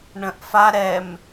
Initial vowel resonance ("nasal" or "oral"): nasal